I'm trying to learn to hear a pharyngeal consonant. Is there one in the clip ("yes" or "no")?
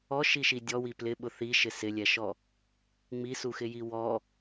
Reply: no